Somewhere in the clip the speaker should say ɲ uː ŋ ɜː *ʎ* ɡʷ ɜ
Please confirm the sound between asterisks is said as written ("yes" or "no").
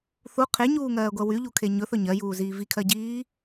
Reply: no